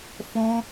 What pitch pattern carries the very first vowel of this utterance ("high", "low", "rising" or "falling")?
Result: high